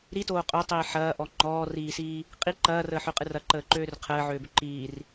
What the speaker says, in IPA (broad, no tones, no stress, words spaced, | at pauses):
ɾitoː qʼøtˤiː ħɐːʔɔ ŋ͡ǃɔːriːsiː | qʼi ǃɐːrəːħøqʼɨr ɐǃəːǃøːr qʰəːʕøːbʏ ǃiːr